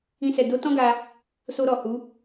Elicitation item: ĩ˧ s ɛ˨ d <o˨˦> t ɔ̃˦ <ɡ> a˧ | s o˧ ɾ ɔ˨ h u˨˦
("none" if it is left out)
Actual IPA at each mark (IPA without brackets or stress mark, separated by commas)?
o˨˦, ɡ